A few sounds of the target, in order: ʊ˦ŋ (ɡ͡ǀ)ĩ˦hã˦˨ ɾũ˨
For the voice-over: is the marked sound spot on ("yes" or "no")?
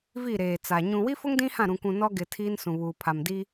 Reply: no